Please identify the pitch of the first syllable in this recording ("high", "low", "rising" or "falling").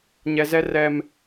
high